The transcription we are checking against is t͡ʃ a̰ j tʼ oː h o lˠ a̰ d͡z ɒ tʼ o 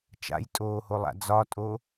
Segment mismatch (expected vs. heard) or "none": none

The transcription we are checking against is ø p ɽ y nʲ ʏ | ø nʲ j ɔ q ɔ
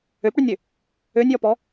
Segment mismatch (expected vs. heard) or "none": q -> p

